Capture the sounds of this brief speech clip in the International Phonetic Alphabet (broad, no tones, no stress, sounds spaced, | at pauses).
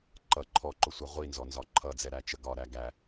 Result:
ǃ ʌ ǃʰ ɔ ǃ ʊ sʷ ʌ ʁʷ i n z ɔ n z ɒ ǃʰ ʌ d͡z ɛ ɾ æ t͡ʃ ə ɡ ɒ ɾ æ ɡ æ